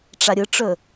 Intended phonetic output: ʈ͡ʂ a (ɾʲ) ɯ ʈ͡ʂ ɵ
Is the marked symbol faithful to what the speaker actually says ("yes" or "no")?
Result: yes